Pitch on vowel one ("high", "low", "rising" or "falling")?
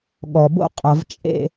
low